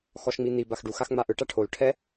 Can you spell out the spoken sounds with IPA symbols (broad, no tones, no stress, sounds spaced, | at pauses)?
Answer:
x ɔ ʃ ŋ͡m i n̪ i b a x ɖ u x a x ŋ͡m a ʔ ɯ ʈ a ʈʰ o l ʈʰ ɛ